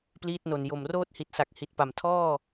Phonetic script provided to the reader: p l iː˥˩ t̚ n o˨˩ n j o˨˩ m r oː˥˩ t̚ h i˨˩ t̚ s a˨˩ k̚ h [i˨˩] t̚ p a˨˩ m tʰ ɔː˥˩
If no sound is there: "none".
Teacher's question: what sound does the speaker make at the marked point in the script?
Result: i˨˩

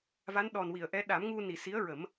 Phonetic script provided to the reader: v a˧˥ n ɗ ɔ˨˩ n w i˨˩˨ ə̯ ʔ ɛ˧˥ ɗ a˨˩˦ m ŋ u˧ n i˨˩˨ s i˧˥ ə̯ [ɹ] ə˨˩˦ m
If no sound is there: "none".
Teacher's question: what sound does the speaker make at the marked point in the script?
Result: ɹ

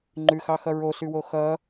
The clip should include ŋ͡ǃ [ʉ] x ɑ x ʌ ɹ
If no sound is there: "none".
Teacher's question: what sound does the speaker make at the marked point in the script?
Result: ʉ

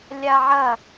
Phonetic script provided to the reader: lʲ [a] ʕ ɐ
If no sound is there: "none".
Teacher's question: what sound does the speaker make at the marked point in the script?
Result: a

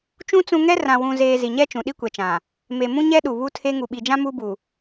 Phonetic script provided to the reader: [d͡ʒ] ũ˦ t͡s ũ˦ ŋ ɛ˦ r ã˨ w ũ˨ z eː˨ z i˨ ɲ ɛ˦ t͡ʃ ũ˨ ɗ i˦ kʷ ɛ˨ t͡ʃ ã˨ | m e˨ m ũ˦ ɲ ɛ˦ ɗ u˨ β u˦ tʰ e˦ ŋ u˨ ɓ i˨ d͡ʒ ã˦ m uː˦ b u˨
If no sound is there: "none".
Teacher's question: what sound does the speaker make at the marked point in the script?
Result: t͡ʃ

